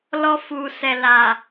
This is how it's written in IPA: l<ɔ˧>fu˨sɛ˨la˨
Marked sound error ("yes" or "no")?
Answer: no